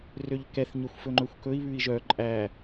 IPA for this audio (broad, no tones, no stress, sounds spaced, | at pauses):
r ø ʎ k ɛ θ ɲ ø xʷ f ɵ ŋ͡ǃ ɵ xʷ k ɵ i̯ β ʉ i̯ ʒ œ ǃʼ æ